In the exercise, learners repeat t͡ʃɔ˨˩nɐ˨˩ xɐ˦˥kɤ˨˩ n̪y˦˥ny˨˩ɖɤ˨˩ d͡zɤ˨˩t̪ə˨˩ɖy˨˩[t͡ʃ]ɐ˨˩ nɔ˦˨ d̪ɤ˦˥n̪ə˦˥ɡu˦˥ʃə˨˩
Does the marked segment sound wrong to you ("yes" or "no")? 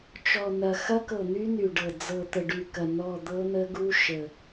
yes